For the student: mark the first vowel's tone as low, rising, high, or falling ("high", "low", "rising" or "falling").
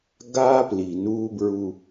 high